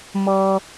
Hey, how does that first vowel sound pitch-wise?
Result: high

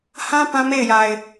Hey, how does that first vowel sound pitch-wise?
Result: high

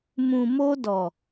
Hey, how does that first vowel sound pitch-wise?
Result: low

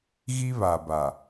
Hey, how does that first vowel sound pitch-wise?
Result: high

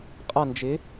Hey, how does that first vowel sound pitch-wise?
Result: falling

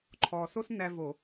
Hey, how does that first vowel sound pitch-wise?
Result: low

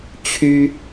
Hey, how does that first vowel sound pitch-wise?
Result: high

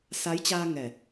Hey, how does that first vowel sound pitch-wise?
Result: rising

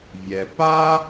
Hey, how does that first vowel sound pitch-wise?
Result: low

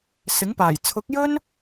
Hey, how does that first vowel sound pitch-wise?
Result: rising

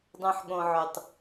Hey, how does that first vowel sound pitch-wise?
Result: low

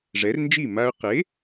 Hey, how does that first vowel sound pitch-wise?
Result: rising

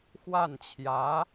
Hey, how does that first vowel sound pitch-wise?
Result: falling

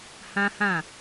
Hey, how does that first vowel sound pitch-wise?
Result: high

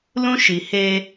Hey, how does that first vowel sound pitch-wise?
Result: high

